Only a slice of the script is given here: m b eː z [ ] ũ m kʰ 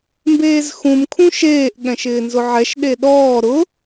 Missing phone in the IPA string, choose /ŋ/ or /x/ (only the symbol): x